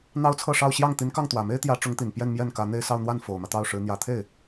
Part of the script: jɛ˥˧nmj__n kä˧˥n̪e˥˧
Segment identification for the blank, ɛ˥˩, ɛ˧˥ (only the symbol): ɛ˥˩